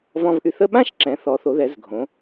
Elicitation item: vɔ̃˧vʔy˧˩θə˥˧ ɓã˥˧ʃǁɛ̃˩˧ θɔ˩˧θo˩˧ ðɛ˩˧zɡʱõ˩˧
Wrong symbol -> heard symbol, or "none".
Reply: none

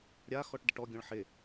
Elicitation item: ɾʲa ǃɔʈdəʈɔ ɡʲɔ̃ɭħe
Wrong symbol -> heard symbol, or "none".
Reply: ǃ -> x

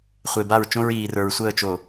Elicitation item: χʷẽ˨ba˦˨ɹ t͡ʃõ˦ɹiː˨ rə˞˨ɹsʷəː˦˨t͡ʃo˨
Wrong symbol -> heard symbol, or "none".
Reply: ẽ˨ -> e˨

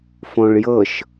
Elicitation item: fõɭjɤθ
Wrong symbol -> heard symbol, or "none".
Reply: θ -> ʃ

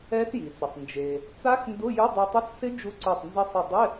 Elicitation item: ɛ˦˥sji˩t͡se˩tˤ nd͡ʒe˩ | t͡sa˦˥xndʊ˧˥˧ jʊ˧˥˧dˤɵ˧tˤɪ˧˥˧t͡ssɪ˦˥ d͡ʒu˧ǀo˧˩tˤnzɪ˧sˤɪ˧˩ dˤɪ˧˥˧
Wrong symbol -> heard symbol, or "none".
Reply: ɵ˧ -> o˧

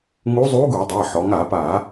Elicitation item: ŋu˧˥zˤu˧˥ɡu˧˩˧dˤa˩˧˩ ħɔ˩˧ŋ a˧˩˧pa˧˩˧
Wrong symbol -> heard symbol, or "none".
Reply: none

